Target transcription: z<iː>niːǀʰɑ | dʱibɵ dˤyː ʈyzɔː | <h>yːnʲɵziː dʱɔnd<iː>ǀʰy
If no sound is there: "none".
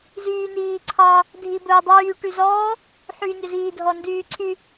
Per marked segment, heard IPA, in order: yː, ħ, yː

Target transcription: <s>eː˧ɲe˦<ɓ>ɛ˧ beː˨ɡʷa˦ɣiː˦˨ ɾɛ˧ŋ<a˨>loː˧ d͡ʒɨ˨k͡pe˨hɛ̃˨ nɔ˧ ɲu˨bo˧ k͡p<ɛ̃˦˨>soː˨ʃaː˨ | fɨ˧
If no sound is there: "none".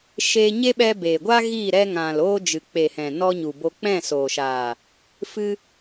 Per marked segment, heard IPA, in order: ʃ, ɓ, ã˨, ɛ̃˦˨

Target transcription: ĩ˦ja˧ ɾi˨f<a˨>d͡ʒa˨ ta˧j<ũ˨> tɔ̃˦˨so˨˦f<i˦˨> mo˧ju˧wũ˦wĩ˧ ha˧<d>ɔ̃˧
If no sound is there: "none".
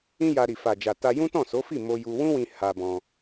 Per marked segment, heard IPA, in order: a˨, ũ˦, i˦˨, b

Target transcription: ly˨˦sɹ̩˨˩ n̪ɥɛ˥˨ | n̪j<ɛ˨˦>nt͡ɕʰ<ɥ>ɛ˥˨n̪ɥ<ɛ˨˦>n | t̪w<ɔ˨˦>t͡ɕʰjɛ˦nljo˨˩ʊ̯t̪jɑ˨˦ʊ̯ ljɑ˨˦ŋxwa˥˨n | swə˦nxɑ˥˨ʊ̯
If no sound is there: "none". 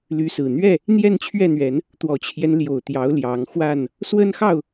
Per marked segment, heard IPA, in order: ɛ˥˨, ɥ, ɛ˨˦, ɔ˨˩

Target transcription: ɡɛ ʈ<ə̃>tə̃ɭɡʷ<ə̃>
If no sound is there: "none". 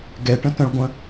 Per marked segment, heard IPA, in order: ə̃, ə̃

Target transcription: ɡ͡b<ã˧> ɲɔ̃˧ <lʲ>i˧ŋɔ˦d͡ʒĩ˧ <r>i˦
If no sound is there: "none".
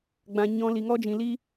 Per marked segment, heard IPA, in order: ã˧, l, l

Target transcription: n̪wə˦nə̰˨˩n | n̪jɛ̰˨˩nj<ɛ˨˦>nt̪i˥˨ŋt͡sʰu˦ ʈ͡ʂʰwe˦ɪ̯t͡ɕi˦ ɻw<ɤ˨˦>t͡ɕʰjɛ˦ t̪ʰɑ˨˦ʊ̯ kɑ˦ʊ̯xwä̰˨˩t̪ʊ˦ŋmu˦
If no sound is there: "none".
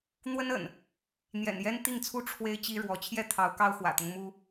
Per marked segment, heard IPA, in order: ɛ˦, ɔ˨˦

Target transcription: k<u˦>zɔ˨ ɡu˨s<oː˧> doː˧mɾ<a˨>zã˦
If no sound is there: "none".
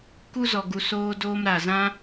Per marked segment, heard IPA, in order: u˧, oː˧, a˨

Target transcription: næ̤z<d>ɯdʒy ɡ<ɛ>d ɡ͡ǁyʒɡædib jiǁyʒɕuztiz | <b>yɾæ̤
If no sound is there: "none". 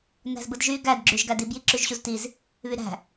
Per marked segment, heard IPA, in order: b, æ, β

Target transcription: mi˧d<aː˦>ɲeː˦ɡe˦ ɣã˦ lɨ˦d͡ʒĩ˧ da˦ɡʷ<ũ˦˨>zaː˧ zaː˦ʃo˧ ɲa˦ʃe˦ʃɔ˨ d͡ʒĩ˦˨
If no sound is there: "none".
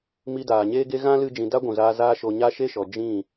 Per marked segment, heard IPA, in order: aː˨, ũ˨

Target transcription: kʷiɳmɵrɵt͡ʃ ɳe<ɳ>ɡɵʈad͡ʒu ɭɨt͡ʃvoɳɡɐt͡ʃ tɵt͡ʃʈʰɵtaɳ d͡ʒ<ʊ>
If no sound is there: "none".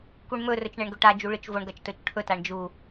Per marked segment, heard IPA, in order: ɳ, u

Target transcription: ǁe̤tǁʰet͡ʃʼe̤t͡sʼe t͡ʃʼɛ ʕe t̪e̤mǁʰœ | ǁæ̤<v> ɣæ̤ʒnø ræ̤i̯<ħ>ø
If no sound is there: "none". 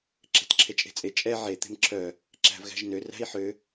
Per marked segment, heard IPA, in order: v, ħ

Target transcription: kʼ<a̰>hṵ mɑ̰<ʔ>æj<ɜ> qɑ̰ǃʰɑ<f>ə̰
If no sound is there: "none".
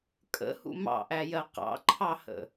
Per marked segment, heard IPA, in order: ə̰, ʔ, ɜ, h

